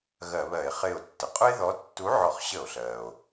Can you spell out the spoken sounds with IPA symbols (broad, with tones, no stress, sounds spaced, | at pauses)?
ɣ ɜ˧˩˧ β ɜ˧˩˧ e̯ χ ɪː˧˩ o̯ tː ə˩ qʼ ʊ˦ e̯ ð ɔ˨˥ tː u˨˥ ʕ ɔ˧˩˧ χ ɕ ə˧˩˧ o̯ ɬ ɜː˩ o̯